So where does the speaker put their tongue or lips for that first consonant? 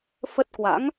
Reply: lips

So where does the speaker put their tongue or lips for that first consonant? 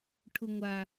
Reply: retroflex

